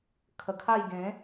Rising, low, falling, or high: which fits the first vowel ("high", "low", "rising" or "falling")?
low